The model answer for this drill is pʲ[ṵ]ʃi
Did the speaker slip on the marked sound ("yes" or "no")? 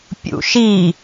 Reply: no